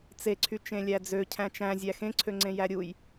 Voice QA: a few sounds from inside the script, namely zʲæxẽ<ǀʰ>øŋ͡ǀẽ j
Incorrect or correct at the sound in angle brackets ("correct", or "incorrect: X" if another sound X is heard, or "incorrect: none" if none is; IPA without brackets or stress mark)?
correct